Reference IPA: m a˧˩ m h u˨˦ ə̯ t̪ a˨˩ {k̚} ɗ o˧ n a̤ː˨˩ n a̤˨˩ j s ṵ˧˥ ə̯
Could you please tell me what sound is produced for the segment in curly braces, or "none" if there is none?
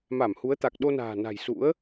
k̚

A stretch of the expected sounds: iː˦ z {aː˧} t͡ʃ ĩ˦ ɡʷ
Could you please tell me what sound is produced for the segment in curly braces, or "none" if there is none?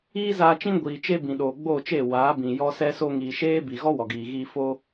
aː˧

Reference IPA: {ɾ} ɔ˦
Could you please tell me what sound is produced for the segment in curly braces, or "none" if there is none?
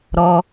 ɾ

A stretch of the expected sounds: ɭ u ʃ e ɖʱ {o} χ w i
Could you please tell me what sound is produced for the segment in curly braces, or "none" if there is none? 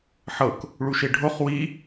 o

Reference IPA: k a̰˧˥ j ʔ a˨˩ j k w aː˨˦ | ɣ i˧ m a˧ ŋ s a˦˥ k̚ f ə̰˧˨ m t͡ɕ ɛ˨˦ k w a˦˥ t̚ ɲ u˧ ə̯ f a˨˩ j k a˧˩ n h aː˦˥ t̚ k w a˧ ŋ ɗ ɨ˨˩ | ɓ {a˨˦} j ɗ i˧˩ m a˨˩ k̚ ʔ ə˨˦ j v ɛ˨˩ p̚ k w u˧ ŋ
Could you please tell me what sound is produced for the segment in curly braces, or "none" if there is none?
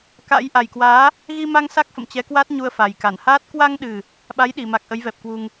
a˨˦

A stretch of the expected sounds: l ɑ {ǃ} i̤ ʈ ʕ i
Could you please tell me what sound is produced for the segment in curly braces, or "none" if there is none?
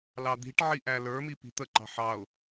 d̪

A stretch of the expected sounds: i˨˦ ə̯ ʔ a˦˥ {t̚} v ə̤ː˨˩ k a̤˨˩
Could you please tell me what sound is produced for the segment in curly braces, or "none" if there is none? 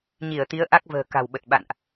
k̚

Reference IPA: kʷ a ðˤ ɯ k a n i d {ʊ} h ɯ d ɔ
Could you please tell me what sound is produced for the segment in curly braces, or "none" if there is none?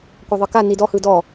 ɔ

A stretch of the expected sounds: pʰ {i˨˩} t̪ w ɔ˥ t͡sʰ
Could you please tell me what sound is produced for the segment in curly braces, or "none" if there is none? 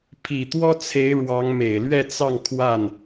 i˨˩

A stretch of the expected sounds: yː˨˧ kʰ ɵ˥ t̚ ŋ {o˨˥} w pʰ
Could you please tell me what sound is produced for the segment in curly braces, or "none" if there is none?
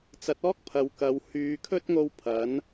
o˧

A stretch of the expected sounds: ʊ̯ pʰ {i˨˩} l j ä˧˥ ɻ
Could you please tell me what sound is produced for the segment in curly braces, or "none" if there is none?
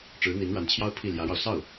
i˥˩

